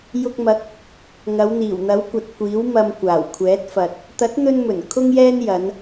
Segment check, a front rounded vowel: absent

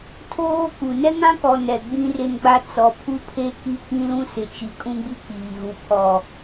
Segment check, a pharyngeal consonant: absent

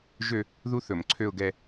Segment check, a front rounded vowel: present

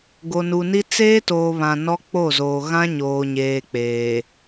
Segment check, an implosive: absent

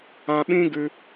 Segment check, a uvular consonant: absent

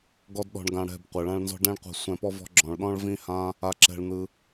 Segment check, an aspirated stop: absent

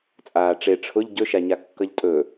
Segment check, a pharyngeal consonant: absent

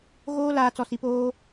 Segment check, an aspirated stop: absent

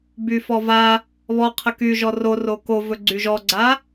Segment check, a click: present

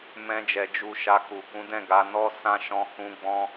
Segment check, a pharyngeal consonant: absent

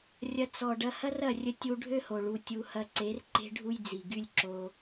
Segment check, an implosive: absent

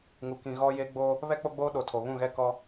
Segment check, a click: absent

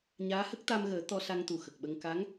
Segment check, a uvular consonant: absent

